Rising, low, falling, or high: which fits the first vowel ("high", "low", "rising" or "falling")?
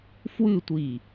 falling